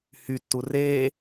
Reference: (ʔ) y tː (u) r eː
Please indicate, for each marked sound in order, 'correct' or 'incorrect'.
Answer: incorrect, correct

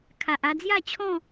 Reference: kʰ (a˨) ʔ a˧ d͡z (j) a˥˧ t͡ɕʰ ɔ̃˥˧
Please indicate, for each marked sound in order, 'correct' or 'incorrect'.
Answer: correct, correct

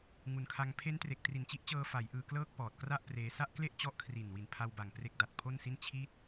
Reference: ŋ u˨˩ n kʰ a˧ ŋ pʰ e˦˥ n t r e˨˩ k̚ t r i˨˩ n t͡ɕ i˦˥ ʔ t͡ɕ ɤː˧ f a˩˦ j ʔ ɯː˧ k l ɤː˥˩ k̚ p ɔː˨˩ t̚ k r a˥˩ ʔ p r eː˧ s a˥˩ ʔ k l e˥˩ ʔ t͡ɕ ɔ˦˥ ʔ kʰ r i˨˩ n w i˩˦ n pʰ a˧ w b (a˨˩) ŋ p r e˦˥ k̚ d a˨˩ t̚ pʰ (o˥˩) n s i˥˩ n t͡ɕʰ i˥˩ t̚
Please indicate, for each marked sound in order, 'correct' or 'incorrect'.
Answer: correct, correct

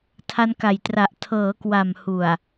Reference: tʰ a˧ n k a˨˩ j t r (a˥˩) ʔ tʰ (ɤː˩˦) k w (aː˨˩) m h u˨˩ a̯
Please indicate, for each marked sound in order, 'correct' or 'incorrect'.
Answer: incorrect, correct, incorrect

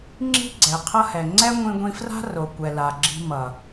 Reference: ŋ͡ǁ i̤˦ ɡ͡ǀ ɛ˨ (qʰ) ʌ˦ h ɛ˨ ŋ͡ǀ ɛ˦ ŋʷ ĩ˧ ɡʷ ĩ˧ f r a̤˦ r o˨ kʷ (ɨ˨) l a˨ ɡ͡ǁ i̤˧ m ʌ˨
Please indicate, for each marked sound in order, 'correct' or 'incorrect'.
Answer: correct, incorrect

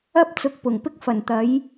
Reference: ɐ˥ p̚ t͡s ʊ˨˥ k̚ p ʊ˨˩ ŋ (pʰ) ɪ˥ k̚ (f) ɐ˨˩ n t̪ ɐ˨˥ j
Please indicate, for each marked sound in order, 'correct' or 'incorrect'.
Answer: incorrect, correct

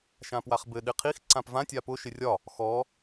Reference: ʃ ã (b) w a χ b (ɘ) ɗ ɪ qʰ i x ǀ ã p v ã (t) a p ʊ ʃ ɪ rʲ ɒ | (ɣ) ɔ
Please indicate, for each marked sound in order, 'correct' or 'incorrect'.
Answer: incorrect, correct, incorrect, incorrect

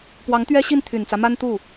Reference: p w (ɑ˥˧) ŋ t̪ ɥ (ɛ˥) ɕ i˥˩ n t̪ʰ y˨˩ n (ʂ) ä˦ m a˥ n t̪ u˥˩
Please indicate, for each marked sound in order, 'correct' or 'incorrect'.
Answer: incorrect, correct, incorrect

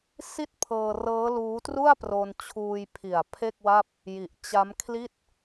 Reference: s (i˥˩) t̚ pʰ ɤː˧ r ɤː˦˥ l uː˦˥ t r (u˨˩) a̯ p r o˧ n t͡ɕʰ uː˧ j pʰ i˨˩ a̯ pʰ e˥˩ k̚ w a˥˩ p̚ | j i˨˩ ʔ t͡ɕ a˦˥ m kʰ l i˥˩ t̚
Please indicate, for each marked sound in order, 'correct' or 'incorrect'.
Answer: correct, incorrect

